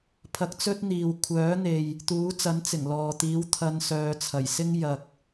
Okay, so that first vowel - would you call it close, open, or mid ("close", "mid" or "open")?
open